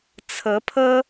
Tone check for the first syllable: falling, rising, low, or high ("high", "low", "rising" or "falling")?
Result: rising